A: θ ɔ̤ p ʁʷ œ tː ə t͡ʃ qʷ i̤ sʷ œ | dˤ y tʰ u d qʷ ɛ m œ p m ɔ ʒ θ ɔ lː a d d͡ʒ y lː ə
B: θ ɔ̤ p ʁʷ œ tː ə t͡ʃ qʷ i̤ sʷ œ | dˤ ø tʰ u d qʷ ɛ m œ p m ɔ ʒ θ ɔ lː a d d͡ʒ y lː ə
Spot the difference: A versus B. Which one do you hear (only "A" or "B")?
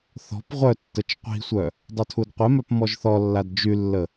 B